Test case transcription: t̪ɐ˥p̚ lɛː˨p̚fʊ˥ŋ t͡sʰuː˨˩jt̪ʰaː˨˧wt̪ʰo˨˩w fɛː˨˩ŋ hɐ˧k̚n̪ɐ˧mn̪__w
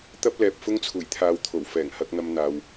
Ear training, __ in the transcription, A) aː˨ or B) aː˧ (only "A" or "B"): A